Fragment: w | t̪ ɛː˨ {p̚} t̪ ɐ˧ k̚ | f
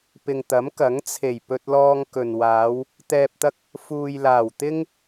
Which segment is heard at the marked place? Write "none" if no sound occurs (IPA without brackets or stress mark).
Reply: p̚